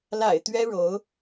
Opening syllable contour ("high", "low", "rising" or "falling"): low